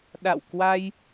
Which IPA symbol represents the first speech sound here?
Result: ɗ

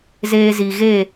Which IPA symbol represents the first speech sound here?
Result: z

